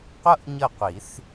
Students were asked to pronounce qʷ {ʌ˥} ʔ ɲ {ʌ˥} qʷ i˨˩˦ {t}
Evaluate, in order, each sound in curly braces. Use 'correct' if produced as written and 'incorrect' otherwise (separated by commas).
correct, incorrect, incorrect